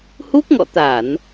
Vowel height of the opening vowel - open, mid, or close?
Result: close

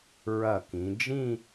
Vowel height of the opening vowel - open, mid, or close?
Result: open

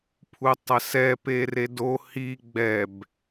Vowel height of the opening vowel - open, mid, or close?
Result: close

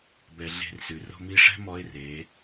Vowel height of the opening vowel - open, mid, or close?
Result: mid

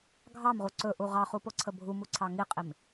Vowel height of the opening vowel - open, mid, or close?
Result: open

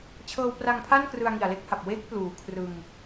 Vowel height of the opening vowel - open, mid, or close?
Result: mid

